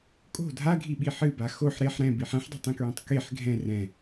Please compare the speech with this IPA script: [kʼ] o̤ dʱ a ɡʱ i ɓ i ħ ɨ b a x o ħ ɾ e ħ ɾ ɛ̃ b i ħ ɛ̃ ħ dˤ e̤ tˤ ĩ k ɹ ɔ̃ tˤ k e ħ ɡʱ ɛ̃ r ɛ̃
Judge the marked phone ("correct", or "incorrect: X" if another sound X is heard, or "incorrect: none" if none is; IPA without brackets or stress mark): correct